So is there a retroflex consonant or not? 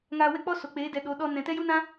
no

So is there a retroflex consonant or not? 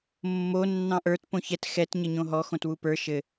no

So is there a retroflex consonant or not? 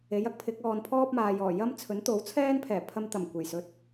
no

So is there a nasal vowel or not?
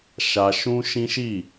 yes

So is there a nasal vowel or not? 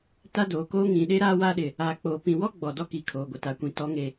yes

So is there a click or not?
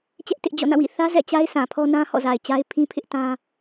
no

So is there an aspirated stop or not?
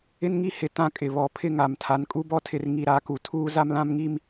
yes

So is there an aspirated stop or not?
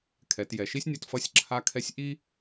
yes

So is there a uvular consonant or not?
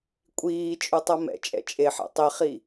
yes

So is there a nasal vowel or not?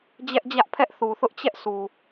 no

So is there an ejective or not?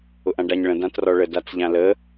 no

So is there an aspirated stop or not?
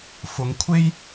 yes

